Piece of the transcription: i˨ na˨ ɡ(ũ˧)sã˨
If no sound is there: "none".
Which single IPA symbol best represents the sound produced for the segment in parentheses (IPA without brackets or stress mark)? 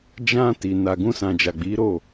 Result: ũ˧